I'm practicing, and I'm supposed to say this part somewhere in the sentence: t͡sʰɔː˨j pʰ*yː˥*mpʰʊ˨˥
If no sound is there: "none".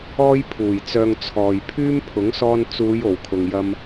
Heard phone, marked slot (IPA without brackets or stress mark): yː˥